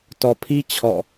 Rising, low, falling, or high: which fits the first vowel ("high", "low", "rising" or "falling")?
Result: low